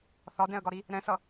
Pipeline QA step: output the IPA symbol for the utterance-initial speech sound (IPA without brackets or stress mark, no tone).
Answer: θ